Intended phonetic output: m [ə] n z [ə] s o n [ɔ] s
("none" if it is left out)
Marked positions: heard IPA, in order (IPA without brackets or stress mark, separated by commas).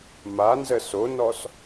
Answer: a, ə, ɔ